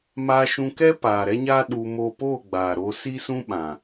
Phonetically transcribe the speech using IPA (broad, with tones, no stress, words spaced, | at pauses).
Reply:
maː˧ʃũ˧kɛ˦ paː˨ɾɛ˦ɲaː˦ ɗu˧ moː˧poː˦˨ɡ͡baː˨ɾoː˧ si˦sũ˦ɓã˨